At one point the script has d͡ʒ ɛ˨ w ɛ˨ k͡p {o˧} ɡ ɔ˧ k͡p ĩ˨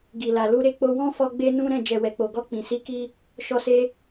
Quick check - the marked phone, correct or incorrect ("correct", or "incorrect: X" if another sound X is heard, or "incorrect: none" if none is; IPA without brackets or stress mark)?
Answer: incorrect: o˨